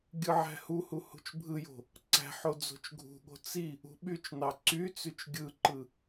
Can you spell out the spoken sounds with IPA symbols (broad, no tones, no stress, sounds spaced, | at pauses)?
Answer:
ɡʲ ɯ ʕ æ̤ h u h u h ṳ t͡ʃ bʱ ɯ j o̤ | ǀ æ̤ ħ o d͡z o̤ t͡ʃ ɡʱ ṳ ɠ o̤ t͡s i | ṳ ɓ y t͡ʃ n ɑ ǀ y t͡s y t͡ʃ ɡʲ ɯ ǃ ɯ